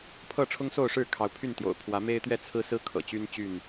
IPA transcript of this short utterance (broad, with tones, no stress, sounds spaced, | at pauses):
pʰ ɤ˥˨ ʈ͡ʂʰ ʊ˦ ŋ s o˥˨ ʊ̯ ʂ ɻ̩˥˨ kʰ ɑ˨˦ ʊ̯ pʰ y˥˨ n t̪ j o̰˨˩ ʊ̯ pʰ w ä˨˦ m e˦ ɪ̯ t̪ ɥ ɛ˥˨ t͡sʰ ɹ̩˦ s ɹ̩˦ kʰ ɤ̰˨˩ t͡ɕ y˦ n t͡ɕ y˥˨ n